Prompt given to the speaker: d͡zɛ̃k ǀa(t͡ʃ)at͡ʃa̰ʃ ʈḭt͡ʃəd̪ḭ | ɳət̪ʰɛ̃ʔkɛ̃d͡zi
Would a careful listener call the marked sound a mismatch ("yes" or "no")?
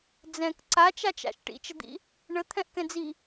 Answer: no